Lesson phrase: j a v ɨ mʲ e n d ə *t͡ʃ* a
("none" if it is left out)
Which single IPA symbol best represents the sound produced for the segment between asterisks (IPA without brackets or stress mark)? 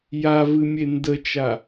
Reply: t͡ʃ